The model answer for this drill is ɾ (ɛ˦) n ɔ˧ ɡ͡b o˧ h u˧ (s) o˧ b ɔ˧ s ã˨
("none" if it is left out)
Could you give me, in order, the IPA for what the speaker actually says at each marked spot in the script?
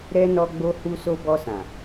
ɛ˦, s

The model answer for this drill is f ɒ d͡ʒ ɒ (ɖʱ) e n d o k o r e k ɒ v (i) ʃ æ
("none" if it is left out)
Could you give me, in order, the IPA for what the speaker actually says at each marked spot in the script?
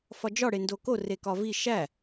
ɽ, i

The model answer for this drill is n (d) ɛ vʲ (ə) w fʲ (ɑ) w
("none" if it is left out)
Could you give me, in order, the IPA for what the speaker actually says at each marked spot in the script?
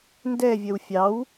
d, ə, ɑ

